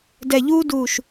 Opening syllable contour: low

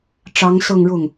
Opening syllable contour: rising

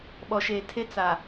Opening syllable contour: low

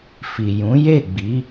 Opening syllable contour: low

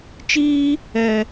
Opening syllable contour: high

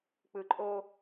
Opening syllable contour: low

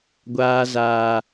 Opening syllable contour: low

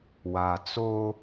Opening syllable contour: low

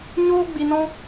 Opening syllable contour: high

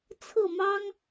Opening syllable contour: falling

